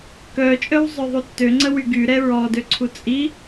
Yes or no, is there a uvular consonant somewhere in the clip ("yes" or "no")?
no